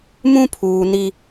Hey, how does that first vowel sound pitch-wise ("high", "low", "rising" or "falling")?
high